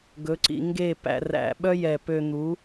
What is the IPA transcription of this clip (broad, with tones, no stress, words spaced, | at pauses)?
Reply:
ɡɵ˨˦ǀḭ˧ŋɡe˦˨ pæ̰˧ræ̰˧ɓœ˦ jɛ˦˨ pø˧n̪u˨˦